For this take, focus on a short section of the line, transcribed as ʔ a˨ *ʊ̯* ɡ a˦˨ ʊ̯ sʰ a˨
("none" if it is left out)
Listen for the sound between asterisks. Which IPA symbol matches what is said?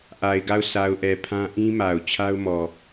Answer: ɪ̯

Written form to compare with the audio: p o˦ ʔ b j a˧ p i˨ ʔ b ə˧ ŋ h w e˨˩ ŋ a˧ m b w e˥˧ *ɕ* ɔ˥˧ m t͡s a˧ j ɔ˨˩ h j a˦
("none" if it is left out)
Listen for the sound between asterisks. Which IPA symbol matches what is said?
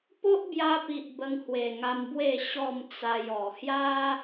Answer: ɕ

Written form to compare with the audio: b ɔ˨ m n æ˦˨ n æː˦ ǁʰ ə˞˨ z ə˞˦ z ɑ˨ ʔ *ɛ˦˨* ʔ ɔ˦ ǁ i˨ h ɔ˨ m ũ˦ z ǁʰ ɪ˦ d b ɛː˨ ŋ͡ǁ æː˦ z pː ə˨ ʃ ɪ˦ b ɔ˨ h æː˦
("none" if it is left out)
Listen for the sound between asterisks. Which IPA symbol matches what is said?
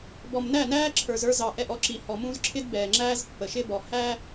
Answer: ɛ˦˨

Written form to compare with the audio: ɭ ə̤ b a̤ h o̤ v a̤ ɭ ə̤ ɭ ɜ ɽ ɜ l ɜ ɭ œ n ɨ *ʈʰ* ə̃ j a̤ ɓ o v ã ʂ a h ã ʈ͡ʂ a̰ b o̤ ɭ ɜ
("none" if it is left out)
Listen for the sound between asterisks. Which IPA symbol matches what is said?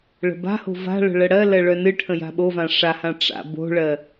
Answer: ʈʰ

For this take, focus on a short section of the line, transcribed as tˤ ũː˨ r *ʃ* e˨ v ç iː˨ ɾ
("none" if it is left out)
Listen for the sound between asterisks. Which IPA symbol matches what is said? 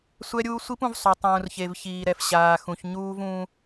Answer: ç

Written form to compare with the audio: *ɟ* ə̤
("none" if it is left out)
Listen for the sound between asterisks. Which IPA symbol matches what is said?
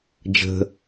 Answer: d͡ʒ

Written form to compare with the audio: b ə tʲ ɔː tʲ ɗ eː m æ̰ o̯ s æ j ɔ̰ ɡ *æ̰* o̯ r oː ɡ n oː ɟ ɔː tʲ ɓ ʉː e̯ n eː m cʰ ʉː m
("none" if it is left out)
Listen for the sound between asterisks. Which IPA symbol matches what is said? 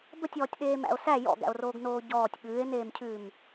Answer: æ̰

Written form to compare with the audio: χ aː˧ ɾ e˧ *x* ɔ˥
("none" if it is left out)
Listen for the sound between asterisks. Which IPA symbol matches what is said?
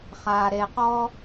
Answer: q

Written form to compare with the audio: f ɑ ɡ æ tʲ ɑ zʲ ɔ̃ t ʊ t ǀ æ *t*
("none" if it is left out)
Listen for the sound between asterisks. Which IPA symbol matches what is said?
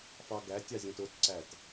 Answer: t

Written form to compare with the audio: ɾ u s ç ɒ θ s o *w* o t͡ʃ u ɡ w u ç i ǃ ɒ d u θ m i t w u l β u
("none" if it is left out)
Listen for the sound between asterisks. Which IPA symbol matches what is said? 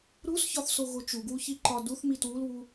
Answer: ɣ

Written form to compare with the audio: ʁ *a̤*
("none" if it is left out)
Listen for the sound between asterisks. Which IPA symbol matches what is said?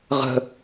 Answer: ə̤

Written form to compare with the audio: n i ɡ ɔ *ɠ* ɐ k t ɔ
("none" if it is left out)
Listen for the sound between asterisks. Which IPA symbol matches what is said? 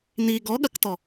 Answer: ɠ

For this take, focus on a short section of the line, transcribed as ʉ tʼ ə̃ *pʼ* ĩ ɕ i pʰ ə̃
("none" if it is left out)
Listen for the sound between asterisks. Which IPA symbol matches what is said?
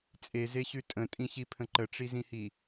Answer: tʼ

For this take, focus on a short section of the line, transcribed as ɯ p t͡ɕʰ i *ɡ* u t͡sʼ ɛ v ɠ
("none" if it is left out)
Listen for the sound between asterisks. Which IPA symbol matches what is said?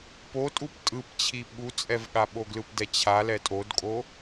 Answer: ɓ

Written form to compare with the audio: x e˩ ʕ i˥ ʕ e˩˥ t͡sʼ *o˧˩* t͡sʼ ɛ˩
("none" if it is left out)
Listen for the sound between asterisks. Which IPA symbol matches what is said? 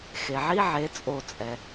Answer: o˧˩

